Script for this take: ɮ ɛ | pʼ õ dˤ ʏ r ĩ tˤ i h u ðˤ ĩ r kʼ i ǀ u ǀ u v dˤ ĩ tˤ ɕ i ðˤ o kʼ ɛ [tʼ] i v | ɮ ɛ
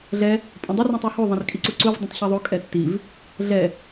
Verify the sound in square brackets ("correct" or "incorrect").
incorrect